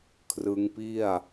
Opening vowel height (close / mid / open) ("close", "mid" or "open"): close